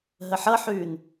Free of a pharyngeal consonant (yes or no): no